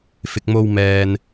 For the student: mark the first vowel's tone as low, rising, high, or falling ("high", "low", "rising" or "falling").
low